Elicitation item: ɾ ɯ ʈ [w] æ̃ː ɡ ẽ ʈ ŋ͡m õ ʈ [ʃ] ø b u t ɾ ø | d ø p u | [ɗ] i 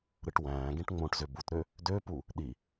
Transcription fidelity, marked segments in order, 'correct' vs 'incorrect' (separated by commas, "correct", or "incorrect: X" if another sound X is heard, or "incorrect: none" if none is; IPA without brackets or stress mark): correct, incorrect: z, correct